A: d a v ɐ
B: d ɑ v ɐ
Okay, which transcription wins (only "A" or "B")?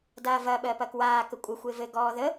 A